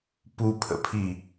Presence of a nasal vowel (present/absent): absent